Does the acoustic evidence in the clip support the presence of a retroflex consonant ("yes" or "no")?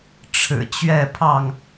yes